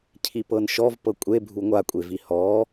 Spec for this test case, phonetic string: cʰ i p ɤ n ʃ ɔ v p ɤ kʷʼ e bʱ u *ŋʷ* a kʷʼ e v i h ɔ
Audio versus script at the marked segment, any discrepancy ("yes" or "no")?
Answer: no